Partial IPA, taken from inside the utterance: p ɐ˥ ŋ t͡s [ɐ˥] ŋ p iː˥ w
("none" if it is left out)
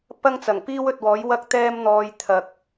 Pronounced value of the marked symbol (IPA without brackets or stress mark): ɐ˨˩